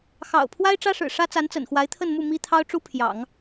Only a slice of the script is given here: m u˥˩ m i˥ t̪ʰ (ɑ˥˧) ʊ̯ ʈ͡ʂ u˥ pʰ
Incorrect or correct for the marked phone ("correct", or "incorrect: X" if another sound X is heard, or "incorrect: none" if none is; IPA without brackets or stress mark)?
incorrect: ɑ˥